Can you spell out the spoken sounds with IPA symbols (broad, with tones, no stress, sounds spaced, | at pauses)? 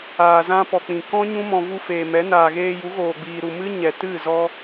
aː˨ z ã˧ p ɔ˨ k͡p ĩ˨ k ɔ̃˦ ɲ ũ˦ m ɔ̃˧ v u˧ f eː˨ m ɛ˨˦ n aː˨ ɣ eː˧ j u˨˦ ɣ oː˨ ɡ͡b iː˨ ɾ u˨ m ɨ˦ ɲ ɛ˨ t ɨ˦˨ z ɔ˧